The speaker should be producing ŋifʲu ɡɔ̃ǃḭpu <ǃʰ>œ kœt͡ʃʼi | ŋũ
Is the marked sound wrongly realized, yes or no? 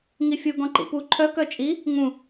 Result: no